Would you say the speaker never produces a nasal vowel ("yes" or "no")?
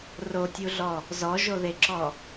yes